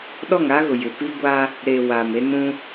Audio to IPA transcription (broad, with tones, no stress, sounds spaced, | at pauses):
ɗ ɔ˦˨ ŋ a˦ ɣ ʊ˨ j ɪ˨ p i˦ ɡʷ a˦ | ɾ e˨ w a˨ m e˦ n ũ˦